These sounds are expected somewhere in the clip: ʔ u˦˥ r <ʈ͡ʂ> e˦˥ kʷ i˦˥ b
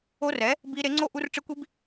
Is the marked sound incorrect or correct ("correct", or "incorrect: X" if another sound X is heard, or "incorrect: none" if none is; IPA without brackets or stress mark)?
correct